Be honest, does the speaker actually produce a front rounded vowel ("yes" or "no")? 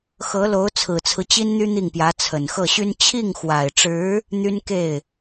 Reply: yes